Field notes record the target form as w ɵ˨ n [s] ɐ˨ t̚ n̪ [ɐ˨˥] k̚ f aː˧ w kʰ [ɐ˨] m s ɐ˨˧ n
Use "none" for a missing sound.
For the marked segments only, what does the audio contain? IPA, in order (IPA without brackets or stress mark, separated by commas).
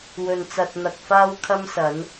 t͡s, ɐ˨, ɐ˧